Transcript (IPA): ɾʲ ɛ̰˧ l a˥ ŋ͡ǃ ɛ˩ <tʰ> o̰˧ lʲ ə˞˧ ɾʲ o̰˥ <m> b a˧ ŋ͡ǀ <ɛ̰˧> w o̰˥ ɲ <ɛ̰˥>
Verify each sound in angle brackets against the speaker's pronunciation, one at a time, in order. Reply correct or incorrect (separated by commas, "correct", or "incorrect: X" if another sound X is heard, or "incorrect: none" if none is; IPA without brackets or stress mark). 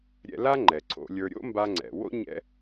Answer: incorrect: ǀʰ, correct, incorrect: ɛ̰˩, correct